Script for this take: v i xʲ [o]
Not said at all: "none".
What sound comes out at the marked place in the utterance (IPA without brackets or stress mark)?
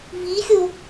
o